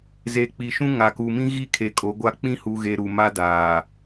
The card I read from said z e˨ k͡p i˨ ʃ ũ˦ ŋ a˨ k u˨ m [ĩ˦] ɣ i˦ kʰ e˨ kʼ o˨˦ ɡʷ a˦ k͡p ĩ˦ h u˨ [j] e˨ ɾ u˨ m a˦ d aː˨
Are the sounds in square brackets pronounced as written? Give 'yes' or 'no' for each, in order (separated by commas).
yes, no